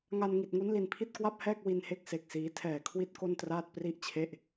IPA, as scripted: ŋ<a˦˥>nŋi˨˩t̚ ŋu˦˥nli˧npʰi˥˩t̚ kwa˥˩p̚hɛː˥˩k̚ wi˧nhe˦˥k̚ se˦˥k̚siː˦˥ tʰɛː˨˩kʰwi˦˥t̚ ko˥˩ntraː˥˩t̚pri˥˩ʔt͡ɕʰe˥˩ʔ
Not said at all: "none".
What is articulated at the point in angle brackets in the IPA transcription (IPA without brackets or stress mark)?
a˧